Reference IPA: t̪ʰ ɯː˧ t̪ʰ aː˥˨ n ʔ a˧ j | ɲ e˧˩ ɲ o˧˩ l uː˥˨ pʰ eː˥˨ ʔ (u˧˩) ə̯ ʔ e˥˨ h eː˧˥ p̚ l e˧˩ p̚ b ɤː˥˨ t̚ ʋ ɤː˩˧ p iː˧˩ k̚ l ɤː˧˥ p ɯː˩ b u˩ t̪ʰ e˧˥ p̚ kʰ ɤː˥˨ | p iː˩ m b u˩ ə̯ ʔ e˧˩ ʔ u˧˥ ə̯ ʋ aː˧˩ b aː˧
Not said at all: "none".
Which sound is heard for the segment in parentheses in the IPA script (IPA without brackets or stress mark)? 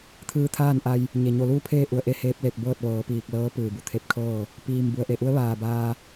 u˧˩